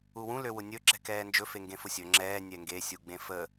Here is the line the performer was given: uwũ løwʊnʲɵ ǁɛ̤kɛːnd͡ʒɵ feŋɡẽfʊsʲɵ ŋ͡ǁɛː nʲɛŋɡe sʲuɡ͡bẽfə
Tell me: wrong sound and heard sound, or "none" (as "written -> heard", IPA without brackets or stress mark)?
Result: none